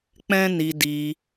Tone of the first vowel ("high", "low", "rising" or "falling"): high